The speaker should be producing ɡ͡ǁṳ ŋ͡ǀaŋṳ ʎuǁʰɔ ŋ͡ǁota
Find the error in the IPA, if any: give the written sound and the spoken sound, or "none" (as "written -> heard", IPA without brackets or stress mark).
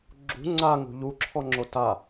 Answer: none